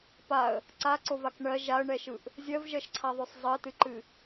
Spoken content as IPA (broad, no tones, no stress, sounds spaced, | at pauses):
p a ə̯ | ǀ a ǀ o v a k ɳ ɜ ʒ a ə̯ ɳ ɛ ʃ ɯ ʔ | zʲ ɜ v ʒ ɜ ʃ ǀʰ a ðˤ o sˤ zˤ ɜ t ɨ ǃ ɨ